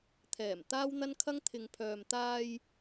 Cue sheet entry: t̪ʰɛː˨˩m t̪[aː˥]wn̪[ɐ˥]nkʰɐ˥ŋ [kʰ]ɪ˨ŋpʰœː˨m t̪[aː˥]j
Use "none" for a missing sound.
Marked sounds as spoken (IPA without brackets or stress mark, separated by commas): aː˥, ɐ˥, t̪ʰ, aː˧